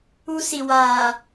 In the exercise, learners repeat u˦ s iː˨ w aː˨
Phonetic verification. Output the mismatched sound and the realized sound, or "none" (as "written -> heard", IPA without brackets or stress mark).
iː˨ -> i˨